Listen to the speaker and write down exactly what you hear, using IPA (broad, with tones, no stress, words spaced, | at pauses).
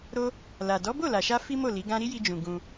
ɾo˦ | la˨ dɔ˨˦bo˦˨la˨ʃa˧ fi˦mo˦˨ li˨˦ɡã˦ ɾi˦ji˧d͡ʒũ˨ ɡũ˧